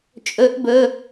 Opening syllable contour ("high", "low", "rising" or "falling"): rising